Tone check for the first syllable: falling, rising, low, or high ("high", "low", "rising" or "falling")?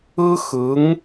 high